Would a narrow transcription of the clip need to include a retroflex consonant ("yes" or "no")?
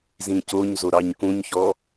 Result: no